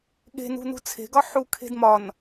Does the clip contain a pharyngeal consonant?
yes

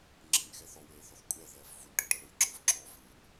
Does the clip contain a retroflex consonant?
yes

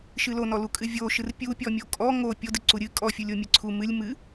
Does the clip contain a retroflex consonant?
no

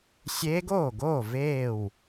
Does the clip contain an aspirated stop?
no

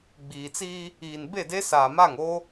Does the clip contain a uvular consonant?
no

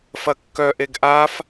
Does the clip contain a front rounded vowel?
yes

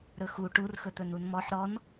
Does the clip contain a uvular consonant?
no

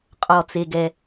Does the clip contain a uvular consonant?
yes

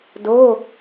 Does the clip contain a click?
no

